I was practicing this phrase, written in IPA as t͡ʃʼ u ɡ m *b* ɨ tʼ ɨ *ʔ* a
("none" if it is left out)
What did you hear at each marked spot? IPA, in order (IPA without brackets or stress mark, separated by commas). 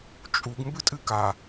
b, k